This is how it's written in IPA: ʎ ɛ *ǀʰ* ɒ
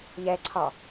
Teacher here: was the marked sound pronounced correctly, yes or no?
yes